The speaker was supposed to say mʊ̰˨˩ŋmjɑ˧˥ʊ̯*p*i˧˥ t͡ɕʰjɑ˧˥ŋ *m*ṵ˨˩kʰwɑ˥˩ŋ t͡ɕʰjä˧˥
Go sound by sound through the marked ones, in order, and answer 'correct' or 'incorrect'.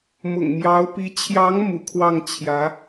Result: correct, correct

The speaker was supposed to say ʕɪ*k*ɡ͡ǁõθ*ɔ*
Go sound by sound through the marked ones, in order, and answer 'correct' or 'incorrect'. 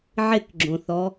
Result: correct, correct

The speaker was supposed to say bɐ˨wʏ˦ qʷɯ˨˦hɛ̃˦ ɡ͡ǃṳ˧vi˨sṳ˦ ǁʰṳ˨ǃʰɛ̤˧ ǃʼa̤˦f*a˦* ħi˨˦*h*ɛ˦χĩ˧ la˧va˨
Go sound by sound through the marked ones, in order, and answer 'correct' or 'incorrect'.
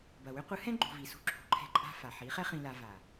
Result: incorrect: a˨, incorrect: χ

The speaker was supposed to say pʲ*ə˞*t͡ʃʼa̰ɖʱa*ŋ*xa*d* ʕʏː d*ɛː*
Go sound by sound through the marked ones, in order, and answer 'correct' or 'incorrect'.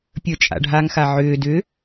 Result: correct, correct, incorrect: none, incorrect: ʏː

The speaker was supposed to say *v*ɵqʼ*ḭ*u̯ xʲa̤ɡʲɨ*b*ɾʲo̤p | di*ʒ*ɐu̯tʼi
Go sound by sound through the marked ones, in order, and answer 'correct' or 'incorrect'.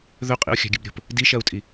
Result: incorrect: ð, correct, correct, incorrect: ʃ

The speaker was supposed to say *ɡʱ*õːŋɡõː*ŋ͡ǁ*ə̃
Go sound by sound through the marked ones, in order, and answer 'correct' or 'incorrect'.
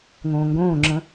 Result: incorrect: ŋ, correct

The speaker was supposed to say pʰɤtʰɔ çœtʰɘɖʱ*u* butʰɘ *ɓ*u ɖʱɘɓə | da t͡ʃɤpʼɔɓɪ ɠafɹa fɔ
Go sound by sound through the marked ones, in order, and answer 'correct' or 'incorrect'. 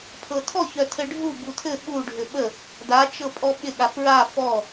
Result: correct, correct

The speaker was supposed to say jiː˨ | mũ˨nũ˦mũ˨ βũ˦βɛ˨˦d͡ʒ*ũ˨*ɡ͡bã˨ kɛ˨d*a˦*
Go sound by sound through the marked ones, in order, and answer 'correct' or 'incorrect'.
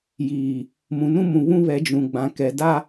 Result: correct, correct

